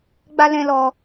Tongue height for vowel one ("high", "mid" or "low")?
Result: low